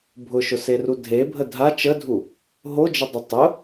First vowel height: high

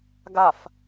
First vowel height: low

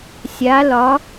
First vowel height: low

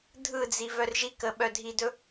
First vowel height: high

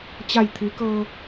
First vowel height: low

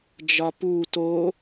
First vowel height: low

